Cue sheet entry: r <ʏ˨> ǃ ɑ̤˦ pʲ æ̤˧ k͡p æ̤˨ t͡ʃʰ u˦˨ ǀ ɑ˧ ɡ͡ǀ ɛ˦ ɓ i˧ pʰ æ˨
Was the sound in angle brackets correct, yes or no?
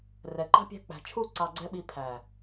no